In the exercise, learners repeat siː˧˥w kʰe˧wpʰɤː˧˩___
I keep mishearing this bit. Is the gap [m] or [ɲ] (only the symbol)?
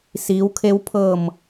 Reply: m